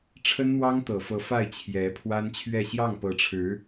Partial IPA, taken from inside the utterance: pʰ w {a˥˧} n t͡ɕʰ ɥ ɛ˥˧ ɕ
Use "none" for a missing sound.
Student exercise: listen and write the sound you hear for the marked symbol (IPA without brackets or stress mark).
a˥